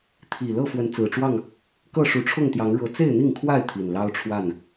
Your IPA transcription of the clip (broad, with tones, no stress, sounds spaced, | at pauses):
t̪ʰ i˨˩ l ɤ˥˨ f w ə˨˦ n t͡s ɹ̩˨˩ ʈ͡ʂ w ɑ˥˨ ŋ | k ɤ˥˨ ʂ u˨˦ ʈ͡ʂʰ ʊ˥˨ ŋ t̪ j ɑ˨˦ ŋ ɻ ɤ˨˦ t͡s e˥˨ ɪ̯ n̪ i˥˨ ŋ kʰ w a˥˨ ɪ̯ t̪ʰ i˨˩ n l ɑ˦ ʊ̯ ʈ͡ʂʰ w a˥˨ n